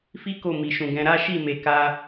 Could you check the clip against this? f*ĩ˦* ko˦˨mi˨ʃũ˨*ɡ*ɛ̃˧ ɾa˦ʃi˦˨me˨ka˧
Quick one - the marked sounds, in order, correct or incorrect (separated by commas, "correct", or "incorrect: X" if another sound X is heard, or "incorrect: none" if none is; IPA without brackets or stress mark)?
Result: incorrect: i˦, correct